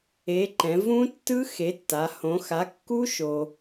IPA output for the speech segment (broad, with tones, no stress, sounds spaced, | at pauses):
e˩˧ ǃ ɛ̃˩˧ v ũ˦˥ tː ɯ˦˥ x e˩˥ tː a˩˧ h õ˩˧ x a˩˥ kː u˦˥ ʃ o˧